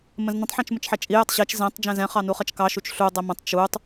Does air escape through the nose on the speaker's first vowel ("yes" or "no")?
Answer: yes